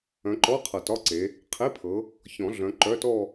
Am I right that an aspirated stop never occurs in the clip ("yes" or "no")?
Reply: no